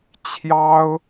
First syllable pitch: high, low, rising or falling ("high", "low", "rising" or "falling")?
high